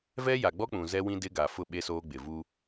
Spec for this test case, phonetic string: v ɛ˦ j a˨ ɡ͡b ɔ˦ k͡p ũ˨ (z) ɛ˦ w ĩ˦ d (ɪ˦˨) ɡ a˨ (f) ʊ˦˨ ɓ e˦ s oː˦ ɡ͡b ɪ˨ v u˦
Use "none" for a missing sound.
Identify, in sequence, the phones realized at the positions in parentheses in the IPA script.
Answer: z, ɪ˦, f

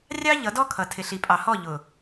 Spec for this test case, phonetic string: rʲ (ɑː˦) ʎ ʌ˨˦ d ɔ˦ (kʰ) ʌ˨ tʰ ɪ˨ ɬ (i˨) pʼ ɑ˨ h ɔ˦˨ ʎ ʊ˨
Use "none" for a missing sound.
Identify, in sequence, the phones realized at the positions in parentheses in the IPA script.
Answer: ɑ˦, kʰ, i˨

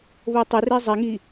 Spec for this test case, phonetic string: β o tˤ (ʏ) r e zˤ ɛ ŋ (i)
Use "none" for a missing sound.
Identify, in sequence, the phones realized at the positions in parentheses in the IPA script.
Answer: ʏ, i

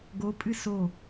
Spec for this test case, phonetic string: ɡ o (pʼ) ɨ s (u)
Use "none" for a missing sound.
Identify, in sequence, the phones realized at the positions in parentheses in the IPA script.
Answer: pʼ, o

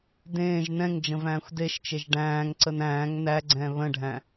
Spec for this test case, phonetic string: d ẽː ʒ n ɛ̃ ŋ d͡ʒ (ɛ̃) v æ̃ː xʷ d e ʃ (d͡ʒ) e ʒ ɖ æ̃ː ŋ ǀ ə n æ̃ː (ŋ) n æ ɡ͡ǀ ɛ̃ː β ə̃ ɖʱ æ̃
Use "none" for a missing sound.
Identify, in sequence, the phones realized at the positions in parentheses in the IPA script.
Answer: ə̃, t͡ʃ, ŋ

